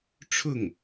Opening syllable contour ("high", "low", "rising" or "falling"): falling